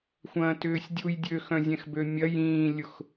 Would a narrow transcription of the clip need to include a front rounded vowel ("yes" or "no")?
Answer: yes